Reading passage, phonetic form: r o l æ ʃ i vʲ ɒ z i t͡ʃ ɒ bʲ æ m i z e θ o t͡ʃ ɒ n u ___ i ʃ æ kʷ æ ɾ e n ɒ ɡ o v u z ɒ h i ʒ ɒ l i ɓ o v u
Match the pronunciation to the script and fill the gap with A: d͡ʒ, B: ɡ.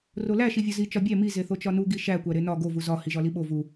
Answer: B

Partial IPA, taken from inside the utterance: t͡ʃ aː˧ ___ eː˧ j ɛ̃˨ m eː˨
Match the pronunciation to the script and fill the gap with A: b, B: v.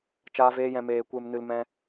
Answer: B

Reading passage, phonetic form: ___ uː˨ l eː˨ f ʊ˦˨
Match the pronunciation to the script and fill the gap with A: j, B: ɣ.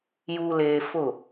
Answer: A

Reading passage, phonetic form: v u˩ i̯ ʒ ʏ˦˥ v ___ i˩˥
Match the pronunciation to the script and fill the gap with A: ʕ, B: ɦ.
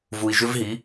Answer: B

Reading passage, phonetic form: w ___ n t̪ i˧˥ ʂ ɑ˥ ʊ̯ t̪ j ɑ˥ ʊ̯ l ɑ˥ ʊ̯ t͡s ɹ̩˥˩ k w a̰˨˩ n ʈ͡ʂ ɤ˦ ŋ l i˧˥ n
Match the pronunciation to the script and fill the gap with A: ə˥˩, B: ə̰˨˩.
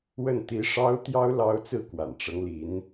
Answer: A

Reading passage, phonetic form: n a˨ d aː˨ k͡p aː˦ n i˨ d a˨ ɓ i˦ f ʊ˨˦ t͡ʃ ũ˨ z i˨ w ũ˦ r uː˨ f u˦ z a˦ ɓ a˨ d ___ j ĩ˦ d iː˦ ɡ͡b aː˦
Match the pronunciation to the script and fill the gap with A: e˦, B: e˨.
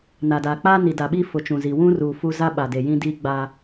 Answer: B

